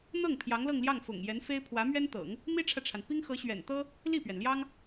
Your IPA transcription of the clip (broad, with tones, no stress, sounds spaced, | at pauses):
n̪ ɤ˥˩ ŋ pʰ j ɑ˧˥ ŋ l ɤ˥˧ ŋ l j ɑ˥˩ ŋ f ʊ̰˨˩ ŋ j ɛ˧˥ n f e˥ ɪ̯ pʰ w ä˧˥ m ɥ ɛ˥ n t̪ ɤ̰˨˩˦ ŋ | m i˥ ʈ͡ʂʰ ä˨ ʈ͡ʂʰ a˩ n p i˥ ŋ x ɤ˧˥ ɕ ɥ ɛ̰˨˩ n t̪ ɤ˥ | l i˥˩ p ɥ ɛ˩ n l j ɑ˥ ŋ